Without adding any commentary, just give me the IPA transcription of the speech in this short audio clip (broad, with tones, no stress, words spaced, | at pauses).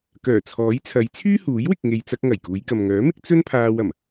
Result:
kœː˨˩t͡sʰɔː˨˥jt͡sʰɐ˨˧j t͡sʰyː˥huː˨˥jwɪ˨k̚ ŋe˨jt͡sɐ˧k̚ ŋɐ˨˩jkuː˨˧jkɐ˨m ŋœː˨˥mɪ˥k̚ t͡sɵ˥n pʰaː˧w ɐ˨˩m